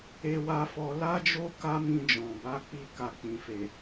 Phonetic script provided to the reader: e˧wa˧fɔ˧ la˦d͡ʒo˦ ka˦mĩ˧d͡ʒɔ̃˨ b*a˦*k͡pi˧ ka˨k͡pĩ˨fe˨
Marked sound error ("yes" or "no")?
yes